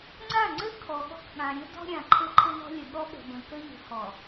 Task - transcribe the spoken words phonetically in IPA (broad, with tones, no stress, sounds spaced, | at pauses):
ŋ͡ǀ a˦˨ ŋ͡ǀ ɘ˦ kʰ ɔ˨ ɠ ɔ̤˦ k ɠ ã˨ ɾʲ ɘ˦ d ɔ̤˦ ɾʲ ã˨ ǃʰ ɘ˦ ǃʰ ɘ˦ n ɔ̤˦ lʲ ə˨ ɠ ɔ˦ ɠ ə̤˨ b ə̃˨ k ə˦ ʎ ə̤˨ h ɔ˨